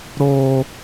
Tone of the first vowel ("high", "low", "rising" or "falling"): high